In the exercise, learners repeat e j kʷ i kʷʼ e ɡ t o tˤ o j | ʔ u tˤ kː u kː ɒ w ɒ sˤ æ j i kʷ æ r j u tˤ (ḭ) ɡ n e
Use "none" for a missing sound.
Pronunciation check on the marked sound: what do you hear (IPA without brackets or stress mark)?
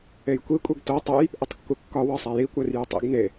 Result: ḭ